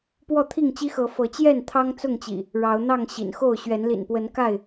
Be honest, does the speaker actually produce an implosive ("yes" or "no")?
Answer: no